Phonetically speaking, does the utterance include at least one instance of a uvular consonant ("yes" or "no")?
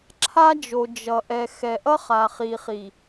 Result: yes